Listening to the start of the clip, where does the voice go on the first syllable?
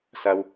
low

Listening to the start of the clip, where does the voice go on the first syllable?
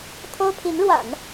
high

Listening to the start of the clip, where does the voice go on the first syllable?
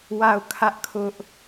falling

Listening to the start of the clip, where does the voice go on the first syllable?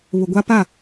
low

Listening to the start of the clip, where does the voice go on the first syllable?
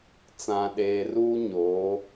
low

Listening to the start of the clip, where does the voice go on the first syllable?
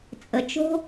low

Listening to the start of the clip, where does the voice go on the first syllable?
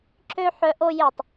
high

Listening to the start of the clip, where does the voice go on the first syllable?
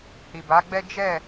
low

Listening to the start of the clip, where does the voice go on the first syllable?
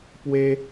high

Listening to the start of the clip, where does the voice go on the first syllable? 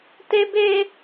high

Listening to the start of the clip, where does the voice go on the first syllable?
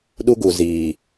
high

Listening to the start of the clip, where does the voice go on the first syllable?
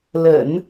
low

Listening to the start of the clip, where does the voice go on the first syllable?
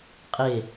falling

